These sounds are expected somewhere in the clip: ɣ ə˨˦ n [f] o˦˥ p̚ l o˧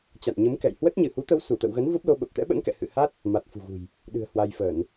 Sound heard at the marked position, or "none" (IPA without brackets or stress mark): v